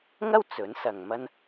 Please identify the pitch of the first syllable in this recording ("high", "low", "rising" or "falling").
high